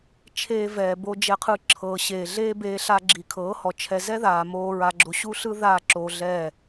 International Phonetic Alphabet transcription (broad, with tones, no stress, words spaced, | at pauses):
t͡ʃʰeː˧vɛː˨ bo˧ d͡ʒɛ˧qʰɯ˧ǁʰɤː˨ ɕeː˨ɮeː˦beː˧ ɬa˧ɡ͡ǁi˨kʰɤː˨˦hɔ˨ t͡ʃʰɛ˨zɛ˦ ðaː˨moː˧ ɹa˨ɡ͡ǁo˨ ɕu˦ɬɯ˦ ða˦˨ǁo˧ɮɛː˦˨